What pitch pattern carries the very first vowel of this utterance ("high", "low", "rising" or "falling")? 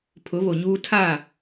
rising